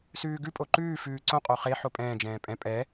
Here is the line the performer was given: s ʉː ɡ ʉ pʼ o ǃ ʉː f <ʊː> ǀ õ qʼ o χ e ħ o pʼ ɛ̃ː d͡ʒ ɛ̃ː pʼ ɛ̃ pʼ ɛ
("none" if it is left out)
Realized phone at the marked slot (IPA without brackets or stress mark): ʉː